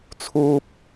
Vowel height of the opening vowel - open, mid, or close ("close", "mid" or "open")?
close